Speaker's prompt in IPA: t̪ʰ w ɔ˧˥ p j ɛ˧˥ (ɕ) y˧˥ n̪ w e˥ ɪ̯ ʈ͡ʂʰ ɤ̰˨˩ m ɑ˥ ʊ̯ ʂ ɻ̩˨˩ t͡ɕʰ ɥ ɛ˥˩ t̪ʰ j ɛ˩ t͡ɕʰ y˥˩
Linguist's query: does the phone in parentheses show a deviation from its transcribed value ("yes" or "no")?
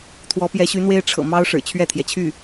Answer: no